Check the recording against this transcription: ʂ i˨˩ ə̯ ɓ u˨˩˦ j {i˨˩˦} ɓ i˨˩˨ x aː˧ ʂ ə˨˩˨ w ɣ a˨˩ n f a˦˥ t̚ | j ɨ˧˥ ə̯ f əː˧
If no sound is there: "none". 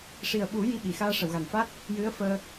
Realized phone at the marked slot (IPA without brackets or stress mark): i˧